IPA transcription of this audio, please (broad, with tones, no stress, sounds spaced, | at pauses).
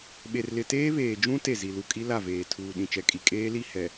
ɓ e˨ r l ɪ˨ t eː˦ β eː˨ d͡ʒ ũ˦ t e˦˨ z i˨ l u˨ kʼ i˦ l a˦˨ v eː˨ tʰ uː˨ ɗ ĩ˨ t͡ʃ ɛ˨ kʼ i˨ kʼ eː˦ l i˦˨ h ɛ˨